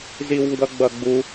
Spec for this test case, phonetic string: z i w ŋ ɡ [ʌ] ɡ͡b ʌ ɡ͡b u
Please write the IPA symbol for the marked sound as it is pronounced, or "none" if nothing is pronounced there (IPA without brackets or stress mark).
ʌ